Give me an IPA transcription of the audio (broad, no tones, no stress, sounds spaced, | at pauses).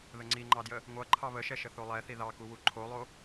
ð ə ŋ͡ǀ i ŋ͡ǃ ɑ d j ə | ŋʷ ʌ ǃʰ ɑ β ə ʃ ɛ ʃ ə θ o lˠ ɛ θ i ð ɑ k u w u ǃʰ o lˠ o